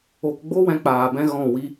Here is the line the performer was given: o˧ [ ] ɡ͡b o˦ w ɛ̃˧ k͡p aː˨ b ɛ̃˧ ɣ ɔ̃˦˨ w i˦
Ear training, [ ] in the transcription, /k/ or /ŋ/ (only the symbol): k